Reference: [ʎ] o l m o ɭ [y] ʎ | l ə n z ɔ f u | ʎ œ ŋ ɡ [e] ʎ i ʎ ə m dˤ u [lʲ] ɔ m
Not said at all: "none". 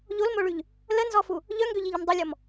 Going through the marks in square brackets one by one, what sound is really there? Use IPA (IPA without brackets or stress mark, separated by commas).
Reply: ʎ, y, ø, lʲ